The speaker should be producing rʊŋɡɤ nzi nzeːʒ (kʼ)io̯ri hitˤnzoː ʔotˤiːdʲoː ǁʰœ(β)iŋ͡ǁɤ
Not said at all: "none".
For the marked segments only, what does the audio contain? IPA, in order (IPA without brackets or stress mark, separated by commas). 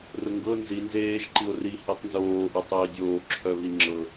ǃ, β